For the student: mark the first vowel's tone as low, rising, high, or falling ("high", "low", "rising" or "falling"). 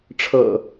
low